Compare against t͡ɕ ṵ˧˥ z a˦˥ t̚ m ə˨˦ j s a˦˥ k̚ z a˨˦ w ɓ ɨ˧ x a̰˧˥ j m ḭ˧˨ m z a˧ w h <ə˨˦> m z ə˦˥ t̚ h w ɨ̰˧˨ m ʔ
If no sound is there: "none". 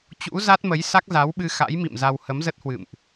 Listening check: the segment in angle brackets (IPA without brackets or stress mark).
ə˨˦